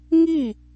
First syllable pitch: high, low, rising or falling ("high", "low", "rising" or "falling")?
falling